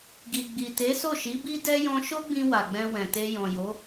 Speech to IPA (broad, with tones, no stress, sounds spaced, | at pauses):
ɡ i˨ ɡ͡b i˨ t e˨˦ s o˦˨ ʃ i˨˦ b i˦ d ɛ˦ j ɔ̃˧ ʃ o˦ ɡ͡b ĩ˧ w a˨ ɡ͡b ɛ̃˧ w ɛ̃˨ t e˧ j ɔ̃˨ j o˨˦